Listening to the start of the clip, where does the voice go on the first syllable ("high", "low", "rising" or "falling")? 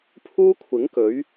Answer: high